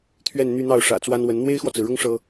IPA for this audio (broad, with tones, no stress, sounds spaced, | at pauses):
t̪ʰ ɥ ɛ˥˧ n n̪ y˥˧ n̪ ɑ˥˩ ʊ̯ ʂ ä̰˨˩ t͡s w a˥ n w ə˧˥ n n̪ w e˥ ɪ̯ x w ɔ˨ t͡s ɹ̩˩ ɻ ʊ˥ ŋ ʂ ɤ˥